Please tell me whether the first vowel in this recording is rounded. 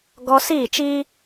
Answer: yes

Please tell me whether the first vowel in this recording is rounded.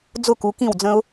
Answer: yes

